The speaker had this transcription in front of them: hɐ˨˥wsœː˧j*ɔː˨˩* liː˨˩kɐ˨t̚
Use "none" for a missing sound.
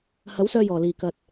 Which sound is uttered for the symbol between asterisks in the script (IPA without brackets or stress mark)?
ɔː˨˩